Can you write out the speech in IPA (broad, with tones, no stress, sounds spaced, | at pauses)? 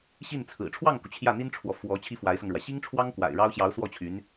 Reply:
ɕ i˥˩ n t͡sʰ ɹ̩˨˩ ʈ͡ʂʰ w ɑ˥˩ ŋ k u˩ t͡ɕʰ j ä˥˩ n̪ i˥ n ʈ͡ʂʰ w ɔ˨ f w ɔ˧˥ t͡ɕʰ i˥ f w a˧˥ ɪ̯ s ɤ˧ ŋ ɻ w ä˩ ɕ i˥ ŋ ʈ͡ʂʰ w ɑ˥ ŋ k w a̰˨˩ ɪ̯ ɻ ɑ˥ ʊ̯ ɕ j ɑ˧˥ ʊ̯ s w ɔ˥˩ t͡ɕʰ y˧˥ n